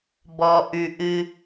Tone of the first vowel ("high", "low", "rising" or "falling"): low